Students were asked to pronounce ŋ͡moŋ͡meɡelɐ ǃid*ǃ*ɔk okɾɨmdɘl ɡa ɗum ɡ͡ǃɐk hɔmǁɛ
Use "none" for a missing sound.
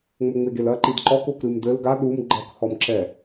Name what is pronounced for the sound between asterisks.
ǃ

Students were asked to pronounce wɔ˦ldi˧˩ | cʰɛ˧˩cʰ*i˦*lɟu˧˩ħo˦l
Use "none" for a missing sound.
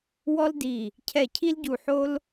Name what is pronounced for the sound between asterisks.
i˦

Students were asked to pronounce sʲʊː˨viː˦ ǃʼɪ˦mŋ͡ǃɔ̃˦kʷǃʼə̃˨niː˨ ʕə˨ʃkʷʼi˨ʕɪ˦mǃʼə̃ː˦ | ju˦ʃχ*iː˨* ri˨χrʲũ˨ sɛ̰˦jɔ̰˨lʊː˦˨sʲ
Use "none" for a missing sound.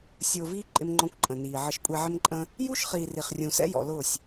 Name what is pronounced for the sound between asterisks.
iː˨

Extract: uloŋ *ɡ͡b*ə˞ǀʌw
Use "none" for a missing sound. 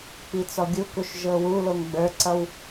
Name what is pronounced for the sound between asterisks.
ɡ͡b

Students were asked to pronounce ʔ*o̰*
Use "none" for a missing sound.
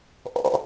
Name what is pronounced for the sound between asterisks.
ɔ̰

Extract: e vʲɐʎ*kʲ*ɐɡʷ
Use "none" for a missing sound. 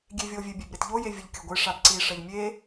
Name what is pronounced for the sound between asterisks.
kʲ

